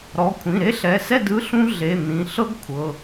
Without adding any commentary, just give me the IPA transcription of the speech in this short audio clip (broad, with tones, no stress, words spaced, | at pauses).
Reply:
ɾɔ˩˧˩kʷʰĩ˩˧˩ ɾe˦˥ɬɛ˩˧˩sɛ˥˨ dɯ˧˥˧ɬũ˦˥ ɮe˩˧˩n̪ĩ˩˧˩ ɬɤ˦˥ɡ kʷʰɤ˩˧˩